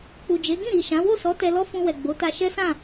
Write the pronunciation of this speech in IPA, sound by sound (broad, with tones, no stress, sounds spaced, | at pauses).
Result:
k͡p u˨ d͡ʒ e˨˦ ɡ ĩ˦˨ ɾ i˨ ʃ ã˨˦ w o˦˨ s ɔ˨˦ t ɛ˧ l ɔ˦ f ũ˧ w ɛ˨ ɡ͡b o˨˦ t a˧ ʃ ɛ˦ s ã˦˨